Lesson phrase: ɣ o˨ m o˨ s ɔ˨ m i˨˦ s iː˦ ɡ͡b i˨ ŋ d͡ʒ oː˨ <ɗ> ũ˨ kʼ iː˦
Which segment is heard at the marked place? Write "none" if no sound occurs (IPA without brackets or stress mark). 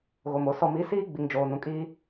n